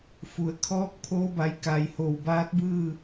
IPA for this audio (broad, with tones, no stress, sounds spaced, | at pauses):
f u˩ ə̯ kʰ ɔː˧ k̚ pʰ oː˧ b a˩˧ j k a˩ j h o˩ w b aː˧˥ t̚ b ɯː˥˨